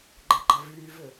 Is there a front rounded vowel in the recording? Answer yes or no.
yes